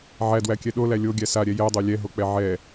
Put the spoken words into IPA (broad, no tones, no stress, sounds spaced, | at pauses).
ʕ æ d w æ kʲ ɛ ɗ o l æ lʲ o ɡʲ æ s a ɾʲ ɛ j ɛ dˤ o lʲ ɛ ɦ o k͡p ɛ ʕ ɛ